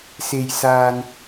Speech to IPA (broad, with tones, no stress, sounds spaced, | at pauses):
s e˨ j s aː˨ n